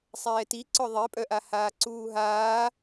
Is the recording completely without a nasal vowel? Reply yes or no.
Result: yes